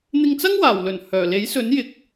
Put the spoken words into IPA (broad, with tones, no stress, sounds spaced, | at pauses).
n̪ ɪ˧ ŋ t͡s ɐ˥ ŋ w aː˨˩ w l ɵ˨˩ n h œː˨˩ l e˨˥ j s ɵ˨˥ n j ɪ˨˥ k̚